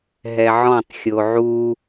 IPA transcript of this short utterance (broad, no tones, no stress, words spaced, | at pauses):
ɦɛʕɔ̃tˤ xʲoʕu